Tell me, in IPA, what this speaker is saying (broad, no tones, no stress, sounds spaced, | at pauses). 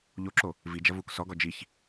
ʎ o ǁ o | v i d͡ʒ ɐ v uː k s ɔ ɡ ɔ d͡ʒ i ç